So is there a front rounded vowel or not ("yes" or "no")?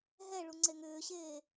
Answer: yes